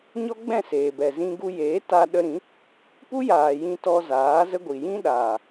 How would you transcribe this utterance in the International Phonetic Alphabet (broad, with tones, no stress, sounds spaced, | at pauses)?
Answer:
ɲ ɔ˦ ɡ͡b ɛ̃˦˨ s eː˨ b ɛ˨ z ĩ˧ ɡ u˧ j eː˨˦ t a˧ ɗ ə˧ ɾ ĩ˨˦ | p u˦ j aː˨ j ĩ˧ t ɔ˧ z aː˨˦ z ə˦ ɡʷ i˨ j ĩ˦ ɗ aː˨